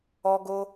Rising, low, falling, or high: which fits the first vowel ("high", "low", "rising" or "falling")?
high